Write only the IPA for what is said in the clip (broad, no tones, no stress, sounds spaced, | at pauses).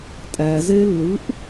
tʼ æ z e lː ɯ ʔ